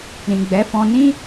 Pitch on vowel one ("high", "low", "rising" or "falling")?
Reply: low